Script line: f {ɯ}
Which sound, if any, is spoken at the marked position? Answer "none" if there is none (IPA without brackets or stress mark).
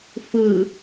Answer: ɯ